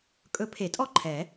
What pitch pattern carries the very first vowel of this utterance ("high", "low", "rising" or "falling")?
rising